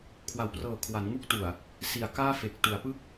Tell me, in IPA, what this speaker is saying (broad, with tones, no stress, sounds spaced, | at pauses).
kʰ w a˩˦ w p r ɤː˨˩ kʰ w a˩˦ n ŋ u˥˩ k̚ t u˨˩ a̯ | s i˩˦ a̯ k aː˥˩ f e˨˩ k̚ t u˩˦ a̯ p ɯ˥˩ k̚